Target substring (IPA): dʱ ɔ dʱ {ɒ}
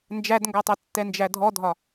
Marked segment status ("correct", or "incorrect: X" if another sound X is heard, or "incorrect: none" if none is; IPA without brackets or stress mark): correct